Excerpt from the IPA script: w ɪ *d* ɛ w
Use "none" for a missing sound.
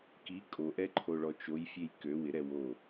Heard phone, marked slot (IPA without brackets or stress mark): ɾ